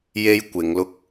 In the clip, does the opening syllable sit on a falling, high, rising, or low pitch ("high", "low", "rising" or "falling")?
high